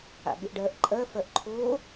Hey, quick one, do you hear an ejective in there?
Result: yes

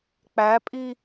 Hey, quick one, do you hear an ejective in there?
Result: yes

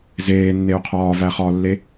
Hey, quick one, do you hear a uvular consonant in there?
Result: yes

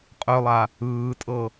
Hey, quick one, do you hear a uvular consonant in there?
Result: yes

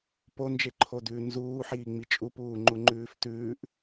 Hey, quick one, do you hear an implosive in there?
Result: no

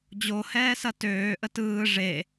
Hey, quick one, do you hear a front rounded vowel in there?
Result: yes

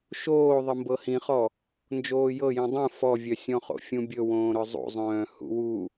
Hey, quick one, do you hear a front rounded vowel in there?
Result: yes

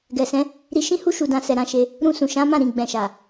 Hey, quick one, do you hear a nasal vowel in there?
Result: yes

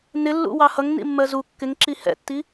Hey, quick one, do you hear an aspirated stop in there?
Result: no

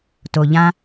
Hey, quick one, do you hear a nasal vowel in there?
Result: yes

